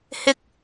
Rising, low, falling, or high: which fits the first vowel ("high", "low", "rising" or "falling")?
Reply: high